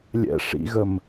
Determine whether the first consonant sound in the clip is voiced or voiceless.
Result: voiced